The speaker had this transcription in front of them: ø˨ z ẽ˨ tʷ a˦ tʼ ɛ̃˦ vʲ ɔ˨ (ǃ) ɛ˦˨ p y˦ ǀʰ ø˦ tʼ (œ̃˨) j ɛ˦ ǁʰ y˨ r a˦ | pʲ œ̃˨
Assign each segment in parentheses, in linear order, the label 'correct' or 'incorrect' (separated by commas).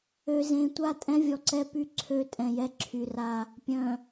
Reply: incorrect, incorrect